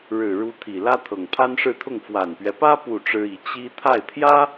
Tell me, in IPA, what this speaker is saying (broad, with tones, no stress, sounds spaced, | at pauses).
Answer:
ɻ ɻ̩˨˩ ɻ u˧˥ t̪ʰ i˨˩ l ä˥ t̪ʰ ɤ˨˩ ŋ pʰ a˥ n ʂ ɻ̩˥˧ t̪ʰ ʊ˥˩ ŋ f w a˨˩ n p ɥ ɛ˦ p ä˥ p u˥˩ ʈ͡ʂ ɻ̩˥ i˧˥ t͡ɕ i˥ t̪ʰ a˥˩ ɪ̯ t̪ʰ j ä˥